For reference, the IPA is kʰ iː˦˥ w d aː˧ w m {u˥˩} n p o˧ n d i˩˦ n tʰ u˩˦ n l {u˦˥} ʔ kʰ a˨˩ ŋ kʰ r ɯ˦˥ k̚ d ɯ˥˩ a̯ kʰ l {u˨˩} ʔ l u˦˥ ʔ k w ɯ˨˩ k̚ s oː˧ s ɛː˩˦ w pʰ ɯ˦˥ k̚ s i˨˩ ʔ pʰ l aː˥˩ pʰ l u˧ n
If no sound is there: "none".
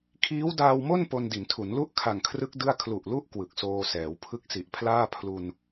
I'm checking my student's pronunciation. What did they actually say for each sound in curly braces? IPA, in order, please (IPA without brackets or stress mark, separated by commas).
o˥˩, u˥˩, u˨˩